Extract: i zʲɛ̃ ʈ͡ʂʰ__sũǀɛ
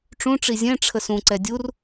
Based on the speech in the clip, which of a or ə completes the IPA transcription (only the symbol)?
ə